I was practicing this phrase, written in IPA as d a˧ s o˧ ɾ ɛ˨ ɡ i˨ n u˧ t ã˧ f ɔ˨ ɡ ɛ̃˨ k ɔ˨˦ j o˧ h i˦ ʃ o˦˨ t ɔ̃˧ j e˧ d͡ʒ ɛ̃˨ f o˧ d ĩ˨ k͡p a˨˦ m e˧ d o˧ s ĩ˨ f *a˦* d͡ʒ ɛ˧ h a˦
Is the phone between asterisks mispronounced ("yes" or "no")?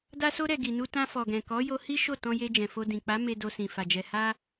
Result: yes